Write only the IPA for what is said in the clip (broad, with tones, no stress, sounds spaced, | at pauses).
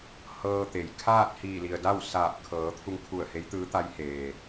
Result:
h ɤː˧ t̪ e˩ j kʰ aː˥˨ t̚ h iː˧˩ l i˩ ə̯ d a˥˨ w s aː˧˩ p̚ kʰ ɤː˩˧ t̪ʰ u˧ ŋ kʰ u˧˩ ə̯ h e˧˥ j t̪ ɯː˧˥ t̪ a˧˥ j h eː˩